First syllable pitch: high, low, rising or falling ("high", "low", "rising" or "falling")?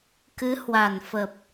rising